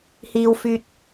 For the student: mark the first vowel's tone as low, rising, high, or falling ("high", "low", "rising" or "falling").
low